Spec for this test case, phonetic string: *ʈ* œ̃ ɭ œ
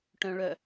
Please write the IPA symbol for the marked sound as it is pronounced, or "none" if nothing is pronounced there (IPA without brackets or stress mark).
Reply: ʈ